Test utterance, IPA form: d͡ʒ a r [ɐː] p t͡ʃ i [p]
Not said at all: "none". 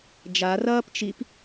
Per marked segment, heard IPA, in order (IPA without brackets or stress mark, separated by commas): ɐː, p